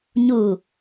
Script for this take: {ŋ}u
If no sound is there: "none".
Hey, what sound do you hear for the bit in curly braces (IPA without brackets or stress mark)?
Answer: ɲ